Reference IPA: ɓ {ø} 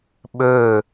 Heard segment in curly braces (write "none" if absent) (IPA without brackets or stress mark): ø